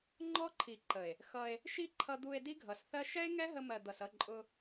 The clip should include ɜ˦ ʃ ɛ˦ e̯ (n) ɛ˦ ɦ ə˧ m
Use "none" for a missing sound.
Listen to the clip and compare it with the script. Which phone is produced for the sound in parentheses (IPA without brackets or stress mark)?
ŋ